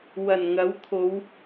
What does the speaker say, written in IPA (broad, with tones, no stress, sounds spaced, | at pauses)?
w ɐ˨˩ n ŋ ɐ˨˥ w t̪ʰ o˨˧ w